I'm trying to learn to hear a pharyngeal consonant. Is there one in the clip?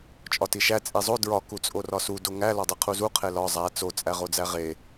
no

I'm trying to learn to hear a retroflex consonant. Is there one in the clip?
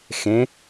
no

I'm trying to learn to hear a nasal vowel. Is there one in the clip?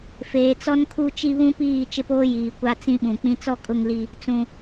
yes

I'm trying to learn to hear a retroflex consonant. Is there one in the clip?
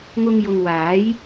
no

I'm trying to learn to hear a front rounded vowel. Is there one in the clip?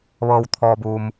no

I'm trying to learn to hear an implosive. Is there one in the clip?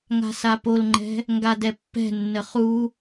no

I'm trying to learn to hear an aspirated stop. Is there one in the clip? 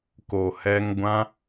no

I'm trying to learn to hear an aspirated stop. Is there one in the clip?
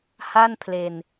yes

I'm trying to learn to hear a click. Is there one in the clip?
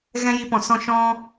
no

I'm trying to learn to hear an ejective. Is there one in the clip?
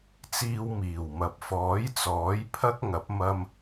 no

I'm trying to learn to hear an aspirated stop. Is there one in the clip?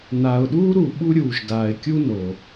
no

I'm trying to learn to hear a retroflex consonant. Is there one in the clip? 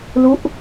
no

